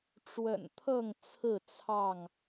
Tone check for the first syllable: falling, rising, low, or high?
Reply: low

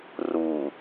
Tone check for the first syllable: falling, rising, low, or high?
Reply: low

